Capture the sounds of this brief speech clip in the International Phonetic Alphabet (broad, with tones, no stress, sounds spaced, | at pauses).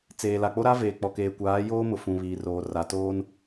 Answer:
t͡s eː˨ l a˨ k͡p o˦ ɾ a˦ v eː˨ k͡p ɔ˨ k eː˨ kʷ aː˨˦ j oː˦ m ʊ˨ f ũ˨ β iː˨ r oː˨ r a˨ t oː˦ n